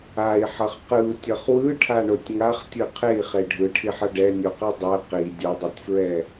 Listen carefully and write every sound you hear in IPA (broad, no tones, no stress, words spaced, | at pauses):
ai̯ħʌχ qɯu̯tʲʌχ wɯʈʰaɳotʲ ŋaχtʲɯ qʰei̯χe ɖʱɯʈʰiħʌ ɖɛnʲoqɯ dˤɛ qi dʲodˤɛtʲfɹɛ